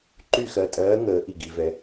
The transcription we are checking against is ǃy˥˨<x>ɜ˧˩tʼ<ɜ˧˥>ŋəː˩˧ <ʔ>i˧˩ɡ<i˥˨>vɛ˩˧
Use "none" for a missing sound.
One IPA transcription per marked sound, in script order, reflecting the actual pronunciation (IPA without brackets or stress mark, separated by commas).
x, ɜː˧˥, ʔ, i˩˧